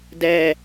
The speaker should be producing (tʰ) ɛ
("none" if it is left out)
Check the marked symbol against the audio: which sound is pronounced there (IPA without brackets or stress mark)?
d